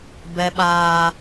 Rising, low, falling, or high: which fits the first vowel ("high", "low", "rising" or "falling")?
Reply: high